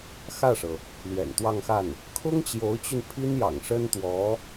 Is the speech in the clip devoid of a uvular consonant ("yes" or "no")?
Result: yes